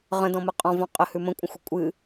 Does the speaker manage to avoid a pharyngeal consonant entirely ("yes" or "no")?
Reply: yes